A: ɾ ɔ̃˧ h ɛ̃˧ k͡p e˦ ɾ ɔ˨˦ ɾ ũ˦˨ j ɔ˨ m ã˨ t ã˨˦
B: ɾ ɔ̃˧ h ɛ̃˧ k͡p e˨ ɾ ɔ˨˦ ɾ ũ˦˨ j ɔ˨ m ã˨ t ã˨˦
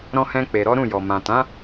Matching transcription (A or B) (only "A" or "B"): B